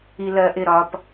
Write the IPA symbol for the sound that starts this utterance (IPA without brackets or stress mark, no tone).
i